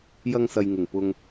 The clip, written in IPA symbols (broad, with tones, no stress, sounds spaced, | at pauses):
j ɐ˧ ŋ s ɐ˨ j ŋ ɪ˨˩ ŋ p ʊ˧ ŋ